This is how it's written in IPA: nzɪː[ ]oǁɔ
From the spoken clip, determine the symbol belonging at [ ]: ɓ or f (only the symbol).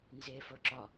f